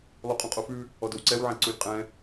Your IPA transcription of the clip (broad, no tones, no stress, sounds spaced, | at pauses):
lˠ u qʼ ũ qʼ o f ʉ | ɔ d o w ǀ ɛ w ʕ ɛ̃ ǀ u lʲ qʼ ɛ̃